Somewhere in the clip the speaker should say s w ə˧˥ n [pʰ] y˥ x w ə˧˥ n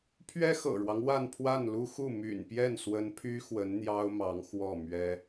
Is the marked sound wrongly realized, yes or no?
no